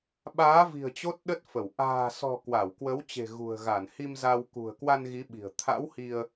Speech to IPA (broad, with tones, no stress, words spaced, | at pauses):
ɓaː˨˦vi̤˨˩ə̯ t͡ɕo˦˥t̚ɗə˦˥t̚fə˧˩w ʔa̤ː˨˩sɔ̤˨˩ kwa˧˩wkwə˨˦wt͡ɕe̤˨˩ ɣṳ˨˩ə̯ɣa˧˩n hi˧m za˧w kṳ˨˩ə̯kwa˧n ɣi˨˦ɓi̤˨˩ə̯ t̪ʰa̰˧˥whi˧ə̯